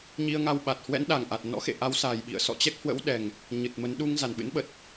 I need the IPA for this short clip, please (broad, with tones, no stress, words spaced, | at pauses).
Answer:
ɲi˧ə̯ŋa˧wɓa˨˩t̚ hwɛ̰˧˥nɗa˨˩ŋʔa˨˩t̚ nɔ̰˧˥xḛ˧˨ ʔa˨˦wsa˨˩jɓḭ˧˨ə̯ sɔ̰˧˨t͡ɕɛ˦˥k̚hwə̰˧˥w ɗɛ˨˩ŋ | ɲɨ˨˩t̚mə˨˦n ɗu˧ŋ za˨˩nɓɨ̰˧˥nɓə˨˩t̚